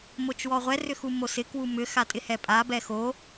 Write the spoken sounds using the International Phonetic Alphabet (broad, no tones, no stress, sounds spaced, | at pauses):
m o t͡ʃ w ɔ ʁʷ ɛ r ʏ x u m o s ɪ k w u m ʏ x a tʼ ɪ h ɛ pʼ a b ɛ x o